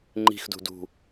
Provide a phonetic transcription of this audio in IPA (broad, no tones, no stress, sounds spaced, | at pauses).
ŋ͡ǃ i̤ x d ṳ d ṳ